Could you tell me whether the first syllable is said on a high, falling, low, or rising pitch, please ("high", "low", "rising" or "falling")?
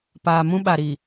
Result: low